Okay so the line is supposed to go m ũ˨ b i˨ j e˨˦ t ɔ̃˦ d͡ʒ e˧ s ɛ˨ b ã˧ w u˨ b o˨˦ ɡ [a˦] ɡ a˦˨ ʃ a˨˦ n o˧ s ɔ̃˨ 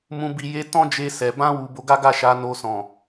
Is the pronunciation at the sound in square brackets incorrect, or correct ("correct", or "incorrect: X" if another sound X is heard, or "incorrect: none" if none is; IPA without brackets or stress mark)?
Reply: correct